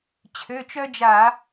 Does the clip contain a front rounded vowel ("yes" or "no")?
yes